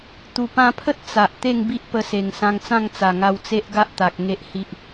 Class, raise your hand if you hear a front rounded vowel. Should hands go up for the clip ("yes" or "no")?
no